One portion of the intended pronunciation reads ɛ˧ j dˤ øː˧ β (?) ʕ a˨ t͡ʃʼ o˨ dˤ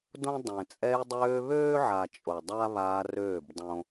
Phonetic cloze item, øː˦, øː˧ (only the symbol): øː˦